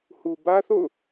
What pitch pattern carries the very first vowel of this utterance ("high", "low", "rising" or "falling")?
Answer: low